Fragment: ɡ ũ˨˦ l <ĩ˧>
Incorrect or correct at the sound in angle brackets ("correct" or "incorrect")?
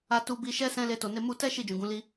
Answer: incorrect